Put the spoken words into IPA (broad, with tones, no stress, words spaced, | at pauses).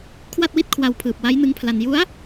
kʰwa˥˩t̚wi˥˩t̚kʰwa˧wpʰɯː˨˩p̚ wa˦˥jnɯ˦˥ŋpʰla˧n ju˦˥a̯